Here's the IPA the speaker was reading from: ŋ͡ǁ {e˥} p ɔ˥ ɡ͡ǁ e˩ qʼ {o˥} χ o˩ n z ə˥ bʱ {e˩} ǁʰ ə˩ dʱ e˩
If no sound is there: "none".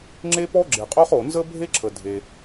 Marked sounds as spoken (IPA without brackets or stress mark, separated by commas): e˥, o˥, e˥